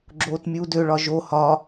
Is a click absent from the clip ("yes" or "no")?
no